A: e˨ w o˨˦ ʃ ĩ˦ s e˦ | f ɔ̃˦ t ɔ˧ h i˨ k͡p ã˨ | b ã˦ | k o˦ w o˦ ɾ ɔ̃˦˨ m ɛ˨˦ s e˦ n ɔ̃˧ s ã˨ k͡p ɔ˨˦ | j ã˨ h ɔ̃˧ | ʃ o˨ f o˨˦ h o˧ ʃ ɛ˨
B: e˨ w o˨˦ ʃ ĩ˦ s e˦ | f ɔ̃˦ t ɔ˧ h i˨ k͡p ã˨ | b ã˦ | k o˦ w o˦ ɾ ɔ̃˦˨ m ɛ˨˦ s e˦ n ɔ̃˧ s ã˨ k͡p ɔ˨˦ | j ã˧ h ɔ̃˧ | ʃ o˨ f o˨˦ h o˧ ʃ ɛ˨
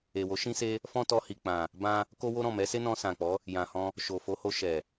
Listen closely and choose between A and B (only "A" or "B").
A